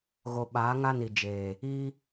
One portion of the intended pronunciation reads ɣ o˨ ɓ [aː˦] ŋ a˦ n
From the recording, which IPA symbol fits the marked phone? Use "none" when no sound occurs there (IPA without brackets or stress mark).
aː˨˦